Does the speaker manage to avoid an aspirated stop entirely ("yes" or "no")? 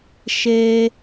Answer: yes